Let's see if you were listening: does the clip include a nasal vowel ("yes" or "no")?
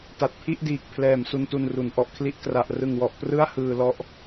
no